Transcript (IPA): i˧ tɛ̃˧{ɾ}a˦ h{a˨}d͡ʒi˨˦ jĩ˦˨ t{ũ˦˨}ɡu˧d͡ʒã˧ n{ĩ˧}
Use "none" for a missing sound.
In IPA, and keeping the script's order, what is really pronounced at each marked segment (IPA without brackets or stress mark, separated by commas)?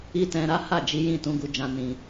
ɾ, a˦˨, ũ˧, ĩ˧